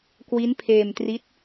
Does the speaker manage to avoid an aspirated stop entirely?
no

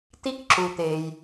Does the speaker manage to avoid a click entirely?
no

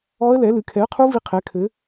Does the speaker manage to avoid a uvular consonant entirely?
no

